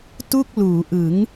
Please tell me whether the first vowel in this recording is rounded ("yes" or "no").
yes